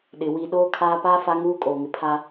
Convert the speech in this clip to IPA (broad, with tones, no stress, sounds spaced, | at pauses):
ɗ ɪ˨ w i˨ ɗ oː˦ kʰ aː˦ p aː˦ f a˦ ŋ uː˦ kʼ oː˨ ŋ ɪ˨ pʰ a˦